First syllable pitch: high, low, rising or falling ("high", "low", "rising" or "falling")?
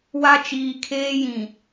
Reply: high